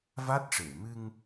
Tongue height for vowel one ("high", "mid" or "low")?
low